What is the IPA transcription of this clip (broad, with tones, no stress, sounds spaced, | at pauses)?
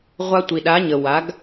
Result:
ʁʷ a˧ tʷ i˩ ɗ a˩˥ ɲ ə˩ w a˩˥ ɡ